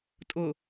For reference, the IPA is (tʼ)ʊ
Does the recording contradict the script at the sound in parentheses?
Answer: no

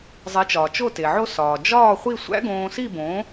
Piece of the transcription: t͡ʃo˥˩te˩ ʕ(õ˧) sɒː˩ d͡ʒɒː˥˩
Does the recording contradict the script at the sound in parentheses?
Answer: yes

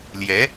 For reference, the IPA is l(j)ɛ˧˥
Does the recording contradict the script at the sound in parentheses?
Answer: no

